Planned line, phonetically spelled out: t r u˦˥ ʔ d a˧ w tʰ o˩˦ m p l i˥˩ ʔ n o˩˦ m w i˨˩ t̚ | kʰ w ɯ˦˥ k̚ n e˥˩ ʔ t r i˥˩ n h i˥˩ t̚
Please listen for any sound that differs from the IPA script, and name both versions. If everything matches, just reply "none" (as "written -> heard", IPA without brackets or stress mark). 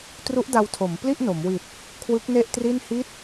none